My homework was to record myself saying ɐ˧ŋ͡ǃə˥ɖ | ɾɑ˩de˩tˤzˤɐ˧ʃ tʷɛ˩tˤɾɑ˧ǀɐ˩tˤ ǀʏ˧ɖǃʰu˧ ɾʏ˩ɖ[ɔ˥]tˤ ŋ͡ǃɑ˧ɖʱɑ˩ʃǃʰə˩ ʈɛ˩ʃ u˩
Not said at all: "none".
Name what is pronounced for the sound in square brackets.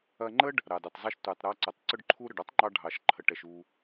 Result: ɔ˥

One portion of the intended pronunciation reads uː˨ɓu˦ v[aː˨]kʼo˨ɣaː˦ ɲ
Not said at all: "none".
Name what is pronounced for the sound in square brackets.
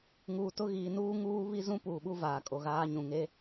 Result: aː˨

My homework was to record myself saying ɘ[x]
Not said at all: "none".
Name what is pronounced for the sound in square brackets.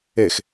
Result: x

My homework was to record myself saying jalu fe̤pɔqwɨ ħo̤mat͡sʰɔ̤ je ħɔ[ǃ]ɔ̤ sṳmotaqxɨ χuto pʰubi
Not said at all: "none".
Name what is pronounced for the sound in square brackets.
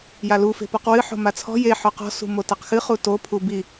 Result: q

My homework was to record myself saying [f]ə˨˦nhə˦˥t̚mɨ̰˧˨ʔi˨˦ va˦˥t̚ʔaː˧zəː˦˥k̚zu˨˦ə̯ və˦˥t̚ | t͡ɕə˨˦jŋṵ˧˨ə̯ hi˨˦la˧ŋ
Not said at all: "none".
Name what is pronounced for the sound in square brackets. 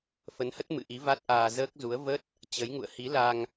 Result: f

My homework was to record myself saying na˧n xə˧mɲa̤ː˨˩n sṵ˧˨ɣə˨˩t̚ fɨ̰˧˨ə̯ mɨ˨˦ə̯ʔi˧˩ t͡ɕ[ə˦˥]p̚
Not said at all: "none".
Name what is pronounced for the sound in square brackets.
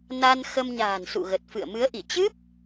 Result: ɨ˦˥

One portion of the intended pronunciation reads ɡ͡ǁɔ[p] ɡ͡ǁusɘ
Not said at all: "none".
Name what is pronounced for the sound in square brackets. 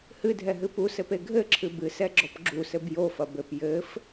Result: p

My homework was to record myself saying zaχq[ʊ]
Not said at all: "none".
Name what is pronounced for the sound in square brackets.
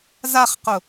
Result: ʊ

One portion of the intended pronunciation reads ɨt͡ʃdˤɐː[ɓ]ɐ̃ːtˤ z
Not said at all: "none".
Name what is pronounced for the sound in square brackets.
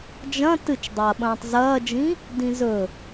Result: ɓ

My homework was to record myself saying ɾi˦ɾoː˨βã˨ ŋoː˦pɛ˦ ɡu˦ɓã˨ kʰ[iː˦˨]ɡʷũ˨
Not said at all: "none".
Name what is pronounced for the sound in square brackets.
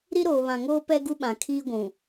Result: iː˦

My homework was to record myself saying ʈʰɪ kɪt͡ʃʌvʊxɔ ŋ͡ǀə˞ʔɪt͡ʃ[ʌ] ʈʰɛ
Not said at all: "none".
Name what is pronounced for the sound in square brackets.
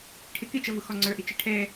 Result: ə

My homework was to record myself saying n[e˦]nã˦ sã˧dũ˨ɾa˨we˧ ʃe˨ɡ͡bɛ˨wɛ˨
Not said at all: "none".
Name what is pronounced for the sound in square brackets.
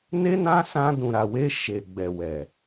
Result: e˦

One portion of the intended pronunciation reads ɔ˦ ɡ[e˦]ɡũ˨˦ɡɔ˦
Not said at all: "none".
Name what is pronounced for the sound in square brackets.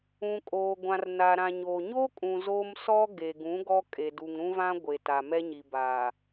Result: e˨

